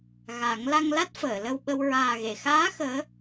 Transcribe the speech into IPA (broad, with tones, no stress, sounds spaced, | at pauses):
ɣ a˨˩˦ ŋ l a˧ ŋ l a˦˥ t̚ f əː˨˩˨ l ə˧ w ɓ ə˧ w ɹ aː˨˩ ɣ e˨˩˨ x aː˧˥ x əː˧˥